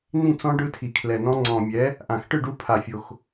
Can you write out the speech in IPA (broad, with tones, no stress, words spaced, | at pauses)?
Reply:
nĩ˥˨t͡sɔ̃˦˥ ɖɯ˦˥tʰi˨˩kʰlɛ˨˩nɔ̃˦˥ ŋ͡ǀɔ̃˨˩mʲɛ˩˥ | ʔã˨˩xʈɯ˥˨ ɖu˦˥pʰa˨˩fʲo˨˩x